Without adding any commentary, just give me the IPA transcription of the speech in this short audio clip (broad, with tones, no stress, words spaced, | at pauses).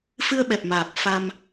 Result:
fɨ˧ə̯ɓɛ˨˩p̚maː˨˩p̚ fa˧m